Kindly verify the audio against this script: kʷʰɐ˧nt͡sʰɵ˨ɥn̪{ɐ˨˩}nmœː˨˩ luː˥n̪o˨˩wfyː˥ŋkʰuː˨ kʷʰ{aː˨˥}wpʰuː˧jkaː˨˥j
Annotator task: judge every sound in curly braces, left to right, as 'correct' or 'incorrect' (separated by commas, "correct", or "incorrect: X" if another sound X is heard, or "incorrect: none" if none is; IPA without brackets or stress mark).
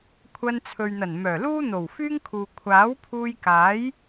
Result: correct, correct